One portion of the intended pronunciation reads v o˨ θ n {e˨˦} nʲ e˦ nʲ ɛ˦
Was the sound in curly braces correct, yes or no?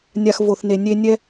no